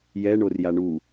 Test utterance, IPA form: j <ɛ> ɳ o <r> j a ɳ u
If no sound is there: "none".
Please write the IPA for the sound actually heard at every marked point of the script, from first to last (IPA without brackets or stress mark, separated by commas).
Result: ɛ, r